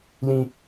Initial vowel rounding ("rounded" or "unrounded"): unrounded